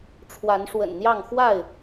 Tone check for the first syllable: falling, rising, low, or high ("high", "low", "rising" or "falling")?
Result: rising